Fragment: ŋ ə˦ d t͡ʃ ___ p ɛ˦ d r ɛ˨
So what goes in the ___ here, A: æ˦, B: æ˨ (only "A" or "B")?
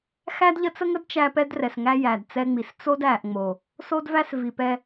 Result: A